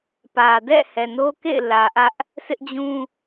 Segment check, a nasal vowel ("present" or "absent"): present